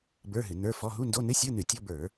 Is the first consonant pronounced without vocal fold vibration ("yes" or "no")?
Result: no